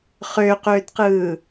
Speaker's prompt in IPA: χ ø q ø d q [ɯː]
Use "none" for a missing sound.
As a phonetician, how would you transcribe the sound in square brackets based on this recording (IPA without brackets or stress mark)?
ɯː